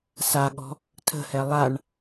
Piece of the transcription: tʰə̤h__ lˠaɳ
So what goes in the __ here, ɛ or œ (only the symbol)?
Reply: ɛ